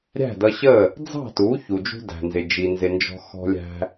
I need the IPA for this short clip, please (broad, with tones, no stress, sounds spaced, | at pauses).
ɾʲ æ̤˥˩ d ʌ˧ ɕ ə˥˩ | d͡z ɑ̤˥˩ t u˩˥ ç u˩ d͡ʒ ṳ˥ d æ̤˩ n z ɪ˩ d͡ʒ i˩ n z ɪ˩ n d͡ʒ ɔ̤˧ x ɔ̤˧ lʲ æ̤˧